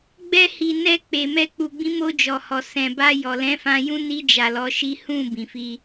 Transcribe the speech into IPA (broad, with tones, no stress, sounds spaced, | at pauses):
ɡ͡b ɛ˧ h i˨ n ɛ˧ k͡p e˨ m ɛ˧ k͡p u˨ ɡ͡b ĩ˨˦ m o˧ d͡ʒ ɔ˨ h ɔ˨ s ɛ̃˨ b a˧ j ɔ˨ l ɛ̃˨˦ f ã˧ j ũ˦ n i˧ d͡ʒ a˨ l ɔ˨˦ ʃ i˦ h ũ˦˨ b ĩ˨ f i˧